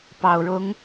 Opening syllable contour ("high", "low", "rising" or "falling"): low